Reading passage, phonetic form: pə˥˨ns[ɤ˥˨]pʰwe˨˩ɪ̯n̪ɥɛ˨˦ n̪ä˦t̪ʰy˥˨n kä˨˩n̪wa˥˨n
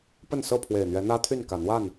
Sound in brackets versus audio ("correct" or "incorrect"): correct